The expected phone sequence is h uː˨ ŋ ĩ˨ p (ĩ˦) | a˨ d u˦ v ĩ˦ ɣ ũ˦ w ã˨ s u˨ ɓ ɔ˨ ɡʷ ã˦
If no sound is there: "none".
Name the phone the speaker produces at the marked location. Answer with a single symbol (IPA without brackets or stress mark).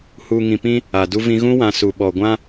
ĩ˦